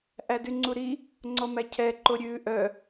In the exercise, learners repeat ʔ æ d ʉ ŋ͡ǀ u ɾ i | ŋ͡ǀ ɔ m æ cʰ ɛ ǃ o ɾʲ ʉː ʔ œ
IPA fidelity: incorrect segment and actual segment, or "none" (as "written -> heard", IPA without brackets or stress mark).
none